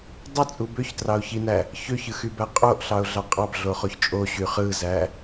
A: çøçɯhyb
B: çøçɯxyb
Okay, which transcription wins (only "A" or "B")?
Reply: B